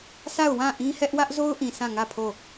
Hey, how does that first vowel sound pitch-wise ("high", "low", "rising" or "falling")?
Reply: falling